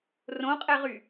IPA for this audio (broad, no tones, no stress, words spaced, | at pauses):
rõqʼɛʁy